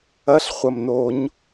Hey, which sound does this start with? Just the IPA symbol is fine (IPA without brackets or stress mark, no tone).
ɐ